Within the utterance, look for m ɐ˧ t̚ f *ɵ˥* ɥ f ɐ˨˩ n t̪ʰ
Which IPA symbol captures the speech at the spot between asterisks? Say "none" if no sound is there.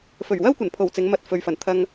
ɵ˨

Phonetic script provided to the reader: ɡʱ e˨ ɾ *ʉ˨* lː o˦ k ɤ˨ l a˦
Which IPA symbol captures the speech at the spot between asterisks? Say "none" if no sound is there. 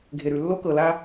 ʉ˨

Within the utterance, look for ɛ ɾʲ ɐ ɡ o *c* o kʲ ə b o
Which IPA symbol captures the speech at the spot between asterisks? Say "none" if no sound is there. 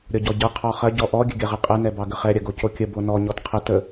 c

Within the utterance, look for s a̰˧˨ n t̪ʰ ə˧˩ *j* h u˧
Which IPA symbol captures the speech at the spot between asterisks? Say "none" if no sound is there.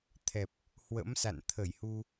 j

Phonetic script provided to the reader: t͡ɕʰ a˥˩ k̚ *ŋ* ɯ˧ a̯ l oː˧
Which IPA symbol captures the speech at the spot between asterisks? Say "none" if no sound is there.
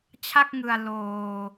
ŋ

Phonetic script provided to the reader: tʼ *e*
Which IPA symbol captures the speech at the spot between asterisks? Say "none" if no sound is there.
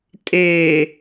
e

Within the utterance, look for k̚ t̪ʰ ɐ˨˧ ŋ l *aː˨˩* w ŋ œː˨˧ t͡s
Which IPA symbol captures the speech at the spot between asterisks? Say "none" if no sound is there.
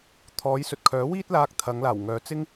aː˨˩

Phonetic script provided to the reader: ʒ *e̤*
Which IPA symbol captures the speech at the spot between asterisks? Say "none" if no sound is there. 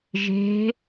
e̤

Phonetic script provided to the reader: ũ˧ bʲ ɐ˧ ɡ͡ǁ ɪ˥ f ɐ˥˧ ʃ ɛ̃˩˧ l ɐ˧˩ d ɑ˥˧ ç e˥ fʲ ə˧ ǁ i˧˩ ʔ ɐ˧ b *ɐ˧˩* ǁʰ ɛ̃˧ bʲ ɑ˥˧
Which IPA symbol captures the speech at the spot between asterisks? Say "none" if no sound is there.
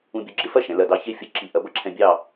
ɐ˥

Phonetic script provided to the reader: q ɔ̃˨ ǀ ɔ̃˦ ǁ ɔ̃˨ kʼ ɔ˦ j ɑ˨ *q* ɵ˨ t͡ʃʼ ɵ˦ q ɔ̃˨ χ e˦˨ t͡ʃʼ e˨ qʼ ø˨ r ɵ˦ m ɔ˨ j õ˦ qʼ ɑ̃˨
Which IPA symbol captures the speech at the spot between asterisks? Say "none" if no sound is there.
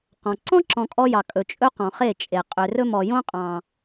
kʼ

